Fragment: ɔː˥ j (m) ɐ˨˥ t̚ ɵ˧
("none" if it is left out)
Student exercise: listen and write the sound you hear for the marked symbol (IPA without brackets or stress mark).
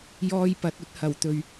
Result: p